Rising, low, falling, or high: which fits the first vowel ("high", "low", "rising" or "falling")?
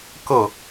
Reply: falling